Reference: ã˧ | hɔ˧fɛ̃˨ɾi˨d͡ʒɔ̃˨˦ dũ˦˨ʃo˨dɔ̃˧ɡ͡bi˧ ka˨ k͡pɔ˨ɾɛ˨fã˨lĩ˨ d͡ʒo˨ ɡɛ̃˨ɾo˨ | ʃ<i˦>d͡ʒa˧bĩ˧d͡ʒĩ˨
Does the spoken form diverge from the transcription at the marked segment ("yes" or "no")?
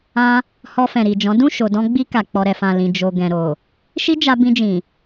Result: no